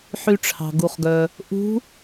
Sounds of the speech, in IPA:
ħy˧ʈ͡ʂʰɑ̤˩ɡu˩χɡœ˩ | ʔṳ˧˥

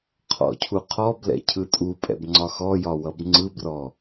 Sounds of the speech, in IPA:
qʰɔ̰cʰuqʰɔ blɛ̰cʰɯtʼupʼɛ̰b ŋ͡ǀɒxɔjɒwʌb ŋ͡ǀɯbrɔ

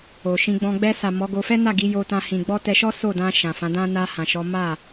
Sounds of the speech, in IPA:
o˨ʃĩ˧ɡ͡bɔ̃˧ ɡ͡bɛ˧ sa˨ mɔ˨˦ɡo˧ fɛ˦na˦˨ ɡi˨˦jo˧tã˧ hĩ˨ɡ͡bɔ˧ tɛ˧ʃɔ˦ so˦˨dã˧ ʃã˨fã˨˦dã˦ na˧ hã˨ʃɔ˨˦ ma˦˨

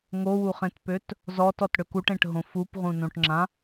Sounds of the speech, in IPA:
ŋowuχẽtpøt | zɔtɔtɽøk uʈẽʈɦõ fupʁũnõʈŋ͡ǁã

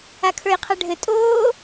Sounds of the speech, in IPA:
akʰə˞jqʰaɖʱɘ tʼoː

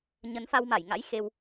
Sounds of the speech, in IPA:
ɲə˨˦nfa˧wma˧˩jŋa̰˧˥j xe˧w

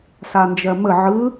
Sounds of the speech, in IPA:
sand͡ʒɜmə ʕɯ

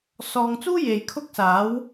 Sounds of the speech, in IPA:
sɔː˨ŋt͡suː˥ je˨jkʰʊ˥k̚saː˨˥w

